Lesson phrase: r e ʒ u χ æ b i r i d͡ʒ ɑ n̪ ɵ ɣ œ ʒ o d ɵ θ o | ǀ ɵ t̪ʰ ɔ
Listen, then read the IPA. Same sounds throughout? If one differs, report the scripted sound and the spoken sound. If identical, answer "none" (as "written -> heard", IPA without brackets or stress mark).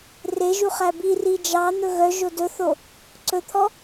none